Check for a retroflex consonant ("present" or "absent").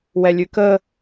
absent